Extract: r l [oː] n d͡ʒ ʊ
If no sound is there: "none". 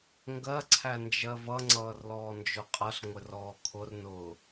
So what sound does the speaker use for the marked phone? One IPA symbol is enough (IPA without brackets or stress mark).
ɔː